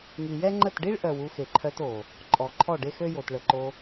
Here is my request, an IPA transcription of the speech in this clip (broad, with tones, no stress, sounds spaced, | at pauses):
ŋ i˨ j ɛ˦ ŋ͡ǃ ə˦˨ t ɖ i˦ ɭ ʔ œ˨ w u˧ x e˨ ǃʰ œ˧ t o˨ | ǃʼ ɔ˨ ǃʰ ɔ˦˨ ɖ e˦ x ø˦ j o˨ t ɭ ə˨ ǃ o˧